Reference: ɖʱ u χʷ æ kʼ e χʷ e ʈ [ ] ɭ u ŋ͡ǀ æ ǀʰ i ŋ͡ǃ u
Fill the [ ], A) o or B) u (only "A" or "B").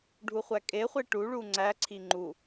B